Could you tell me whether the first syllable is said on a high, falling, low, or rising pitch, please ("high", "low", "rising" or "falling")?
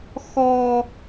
high